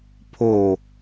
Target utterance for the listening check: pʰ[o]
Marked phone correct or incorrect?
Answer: correct